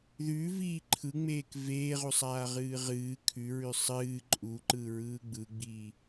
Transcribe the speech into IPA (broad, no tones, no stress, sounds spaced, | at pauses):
ð ʉ v iː ǃʰ ɯ ŋ͡m eː k v eː ʁ u sˤ aː ʁ ɨː ʁ ɨː kʰ ʉ ɹ ʉ sˤ ɨː ǃʼ u ǃ ɯ ɹ ɯː ɡ͡b ɯ ɡ͡b iː